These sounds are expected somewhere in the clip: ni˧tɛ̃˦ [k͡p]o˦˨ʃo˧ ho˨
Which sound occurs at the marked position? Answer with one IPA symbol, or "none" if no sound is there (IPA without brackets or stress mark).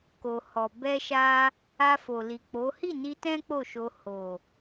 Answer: k͡p